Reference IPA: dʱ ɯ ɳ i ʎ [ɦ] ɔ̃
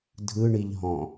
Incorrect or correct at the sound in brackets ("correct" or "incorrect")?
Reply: correct